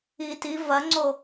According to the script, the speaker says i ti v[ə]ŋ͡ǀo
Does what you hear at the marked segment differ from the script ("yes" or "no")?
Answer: yes